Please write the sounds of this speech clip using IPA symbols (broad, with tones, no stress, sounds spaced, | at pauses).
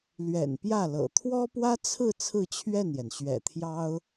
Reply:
l ɥ ɛ̰˨˩ n p j ä˥˩ l ɤ̰˨˩ t̪ʰ w ɔ˥ p w ä˥ t͡sʰ ɹ̩˥˧ t͡sʰ ɹ̩˥˧ t͡ɕʰ ɥ ɛ˥˩ n j ɛ˩ n ɕ ɥ ɛ̰˨˩ t̪ʰ j ɑ˥ ʊ̯